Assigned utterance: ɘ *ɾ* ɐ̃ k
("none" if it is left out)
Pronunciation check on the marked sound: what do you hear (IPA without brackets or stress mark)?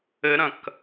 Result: ɾ